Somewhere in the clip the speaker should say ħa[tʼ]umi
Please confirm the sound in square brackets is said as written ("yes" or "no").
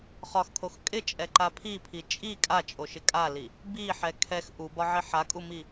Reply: no